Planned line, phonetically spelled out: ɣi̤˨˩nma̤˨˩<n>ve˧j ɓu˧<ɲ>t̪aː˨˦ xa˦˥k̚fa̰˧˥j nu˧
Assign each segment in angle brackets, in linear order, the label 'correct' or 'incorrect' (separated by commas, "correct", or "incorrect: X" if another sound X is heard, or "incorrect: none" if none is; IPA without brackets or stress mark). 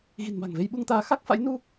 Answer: incorrect: ŋ, incorrect: ŋ